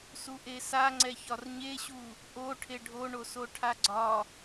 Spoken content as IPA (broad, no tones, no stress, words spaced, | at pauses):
suʔesaŋ͡ǀɛ çɒrɲeɕu | ʔo ʈʰeɖʱoɳoso ʈʰaɡ͡ǀɒ